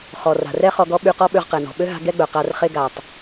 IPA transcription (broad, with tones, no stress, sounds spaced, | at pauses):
χ ɔ˩ r a̤˩ r ɛ˥ χ ɔ˧ ɡ ɔ˥ ɓ y˧ q ɔ˥ ɓ ø˧ ʁ q ɛ˩ n ɔ̤˩ ɓ ø˥ ɦ a̤˧ ɡ ɛ˥ ɡ͡b œ˩ q a˧ r χ e˥ ɡ a˩ tˤ